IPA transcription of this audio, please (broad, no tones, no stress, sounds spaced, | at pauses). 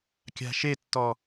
kʲ a̤ ʃ e tː ɔ